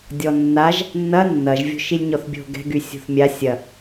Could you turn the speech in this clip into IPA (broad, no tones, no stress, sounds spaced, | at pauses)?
dʲ ɔ nː a ʒ | nː ɐ nː ɐ ʒ vʲ o̤ ʃ i lʲ ɲ ɔ θ bʲ o̤ ɡ ɛ̤ ɡ y sʲ o̤ θ mʲ a sʲ ɐ